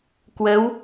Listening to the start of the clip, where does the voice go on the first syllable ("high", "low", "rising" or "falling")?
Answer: rising